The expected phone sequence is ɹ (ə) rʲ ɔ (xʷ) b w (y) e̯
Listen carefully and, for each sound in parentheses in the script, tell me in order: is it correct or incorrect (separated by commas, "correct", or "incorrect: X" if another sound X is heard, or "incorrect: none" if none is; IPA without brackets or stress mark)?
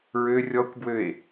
incorrect: ø, incorrect: kʷ, incorrect: ø